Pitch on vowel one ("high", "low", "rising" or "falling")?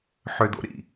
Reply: high